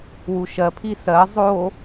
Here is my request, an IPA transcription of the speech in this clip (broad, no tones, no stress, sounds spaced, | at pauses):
w u ʃ ɜ pʰ i s ɜ zˤ o